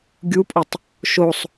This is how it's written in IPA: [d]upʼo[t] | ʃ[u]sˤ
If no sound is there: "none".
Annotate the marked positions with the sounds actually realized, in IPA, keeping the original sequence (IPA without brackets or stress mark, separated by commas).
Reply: ɡʲ, tˤ, o